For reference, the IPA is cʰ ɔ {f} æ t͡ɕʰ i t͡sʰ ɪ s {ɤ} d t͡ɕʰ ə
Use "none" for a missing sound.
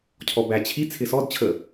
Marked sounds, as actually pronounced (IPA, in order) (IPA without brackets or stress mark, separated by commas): b, ɔ